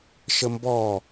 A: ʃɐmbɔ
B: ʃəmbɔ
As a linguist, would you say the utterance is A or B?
B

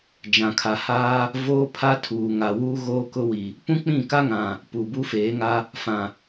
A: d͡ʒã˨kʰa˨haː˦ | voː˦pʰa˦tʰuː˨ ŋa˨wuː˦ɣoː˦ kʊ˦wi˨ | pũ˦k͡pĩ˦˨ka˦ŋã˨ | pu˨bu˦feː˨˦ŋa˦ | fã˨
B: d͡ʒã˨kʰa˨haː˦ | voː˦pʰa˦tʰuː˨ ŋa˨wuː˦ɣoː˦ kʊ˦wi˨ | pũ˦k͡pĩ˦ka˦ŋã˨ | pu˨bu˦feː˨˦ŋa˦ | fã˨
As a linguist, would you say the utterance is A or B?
A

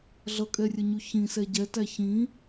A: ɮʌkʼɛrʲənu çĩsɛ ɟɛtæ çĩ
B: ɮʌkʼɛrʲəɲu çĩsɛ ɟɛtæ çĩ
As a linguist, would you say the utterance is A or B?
B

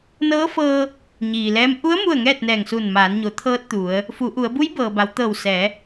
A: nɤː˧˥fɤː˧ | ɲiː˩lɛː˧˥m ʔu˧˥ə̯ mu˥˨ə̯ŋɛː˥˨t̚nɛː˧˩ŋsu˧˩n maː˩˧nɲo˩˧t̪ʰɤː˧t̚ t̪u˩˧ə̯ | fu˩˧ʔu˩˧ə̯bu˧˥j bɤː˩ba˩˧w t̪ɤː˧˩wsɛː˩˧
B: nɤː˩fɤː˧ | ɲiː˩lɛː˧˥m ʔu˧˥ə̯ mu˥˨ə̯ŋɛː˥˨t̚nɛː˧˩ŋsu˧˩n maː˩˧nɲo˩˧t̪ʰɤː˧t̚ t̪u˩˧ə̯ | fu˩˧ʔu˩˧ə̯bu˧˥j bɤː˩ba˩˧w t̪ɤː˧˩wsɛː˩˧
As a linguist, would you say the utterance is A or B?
A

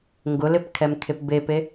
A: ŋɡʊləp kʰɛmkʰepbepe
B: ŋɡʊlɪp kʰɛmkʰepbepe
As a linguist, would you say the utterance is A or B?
B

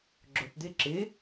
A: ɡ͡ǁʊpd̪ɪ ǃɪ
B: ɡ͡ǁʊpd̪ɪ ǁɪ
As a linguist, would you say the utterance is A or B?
B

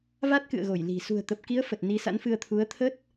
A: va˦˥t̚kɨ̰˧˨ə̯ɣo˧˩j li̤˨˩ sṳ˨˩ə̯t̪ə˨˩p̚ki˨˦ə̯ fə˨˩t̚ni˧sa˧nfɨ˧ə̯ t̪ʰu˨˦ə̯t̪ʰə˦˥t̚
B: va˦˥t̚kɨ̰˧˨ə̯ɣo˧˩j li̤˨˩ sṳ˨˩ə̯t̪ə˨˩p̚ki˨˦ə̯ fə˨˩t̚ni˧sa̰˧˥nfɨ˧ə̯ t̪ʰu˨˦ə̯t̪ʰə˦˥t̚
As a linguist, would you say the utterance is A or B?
B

